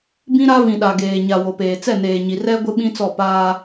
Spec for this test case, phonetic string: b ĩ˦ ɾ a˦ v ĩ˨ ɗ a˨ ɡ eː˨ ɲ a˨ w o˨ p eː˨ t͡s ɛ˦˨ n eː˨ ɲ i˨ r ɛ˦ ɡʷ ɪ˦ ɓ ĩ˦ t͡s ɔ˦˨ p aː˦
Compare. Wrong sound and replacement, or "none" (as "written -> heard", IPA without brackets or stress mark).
none